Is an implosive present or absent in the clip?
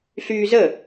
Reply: absent